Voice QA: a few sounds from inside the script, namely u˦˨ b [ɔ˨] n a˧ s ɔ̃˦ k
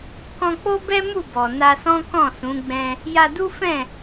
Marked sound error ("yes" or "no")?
no